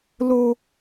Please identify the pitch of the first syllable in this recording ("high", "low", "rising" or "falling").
high